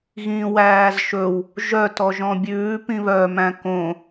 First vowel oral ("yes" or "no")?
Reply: no